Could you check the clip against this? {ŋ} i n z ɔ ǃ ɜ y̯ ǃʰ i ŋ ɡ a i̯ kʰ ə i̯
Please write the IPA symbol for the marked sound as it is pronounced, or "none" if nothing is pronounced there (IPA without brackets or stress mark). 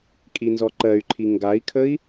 kʼ